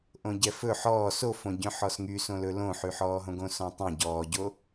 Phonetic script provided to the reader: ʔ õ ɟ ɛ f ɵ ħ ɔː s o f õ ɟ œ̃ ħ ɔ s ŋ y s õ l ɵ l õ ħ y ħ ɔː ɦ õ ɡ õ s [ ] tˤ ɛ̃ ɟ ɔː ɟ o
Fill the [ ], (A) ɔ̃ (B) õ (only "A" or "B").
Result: A